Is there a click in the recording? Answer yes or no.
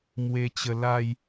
no